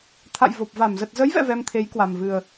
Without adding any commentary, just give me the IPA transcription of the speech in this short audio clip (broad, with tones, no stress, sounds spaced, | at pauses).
t̪ʰ a̰˧˨ j v o˨˩ p̚ v a˧˩ m z ə˨˩ t̚ z ə˨˦ j v ɛ̰˧˨ v ɛ˧ m t̪ʰ e˨˦ j k w a˨˩ m v ɨ˨˩ ə̯